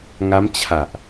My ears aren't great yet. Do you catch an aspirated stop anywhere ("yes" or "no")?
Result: yes